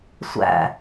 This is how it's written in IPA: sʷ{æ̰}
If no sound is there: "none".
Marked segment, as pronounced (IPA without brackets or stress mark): æ̰